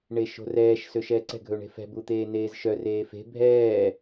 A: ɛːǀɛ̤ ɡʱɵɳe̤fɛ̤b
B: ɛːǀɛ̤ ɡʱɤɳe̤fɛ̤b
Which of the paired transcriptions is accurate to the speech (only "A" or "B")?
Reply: A